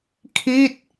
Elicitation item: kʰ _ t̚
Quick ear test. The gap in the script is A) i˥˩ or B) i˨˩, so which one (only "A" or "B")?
A